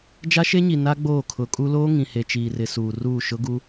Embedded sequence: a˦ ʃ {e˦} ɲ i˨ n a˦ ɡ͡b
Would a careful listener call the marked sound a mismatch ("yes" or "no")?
no